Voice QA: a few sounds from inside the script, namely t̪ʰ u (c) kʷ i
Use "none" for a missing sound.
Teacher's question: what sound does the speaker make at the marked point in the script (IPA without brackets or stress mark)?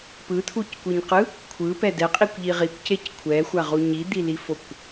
c